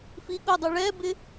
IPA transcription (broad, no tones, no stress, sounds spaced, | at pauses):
f i ɠ ʊ dˤ u ɭ ɛ b ɪ